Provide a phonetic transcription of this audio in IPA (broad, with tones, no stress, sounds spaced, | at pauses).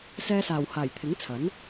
s ɛː˧ s aː˨˩ w h aː˨˩ j t̪ʰ ɪ˨˥ ŋ t͡sʰ ɐ˨˥ n